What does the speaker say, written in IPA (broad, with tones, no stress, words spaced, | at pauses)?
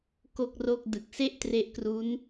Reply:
ko˥˩k̚ro˥˩k̚ dɯ˨˩k̚se˥˩ʔtre˦˥ʔkru˦˥n